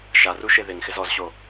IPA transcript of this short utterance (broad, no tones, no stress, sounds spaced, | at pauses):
ʃ a r u ʃ e ð ɪ ŋ x ɪ z ɔ z ɕ o